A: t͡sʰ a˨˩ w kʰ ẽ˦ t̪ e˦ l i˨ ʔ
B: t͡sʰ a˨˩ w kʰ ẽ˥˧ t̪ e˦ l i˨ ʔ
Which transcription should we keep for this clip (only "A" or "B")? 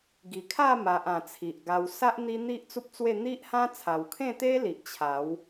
B